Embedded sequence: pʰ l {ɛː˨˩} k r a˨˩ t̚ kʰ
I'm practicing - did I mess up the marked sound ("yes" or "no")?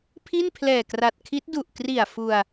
no